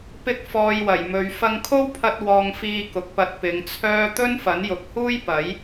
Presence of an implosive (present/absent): absent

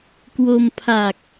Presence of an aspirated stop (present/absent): present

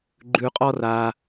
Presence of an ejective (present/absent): present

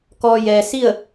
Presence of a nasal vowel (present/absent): absent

